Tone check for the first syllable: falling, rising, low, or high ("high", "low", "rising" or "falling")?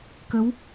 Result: rising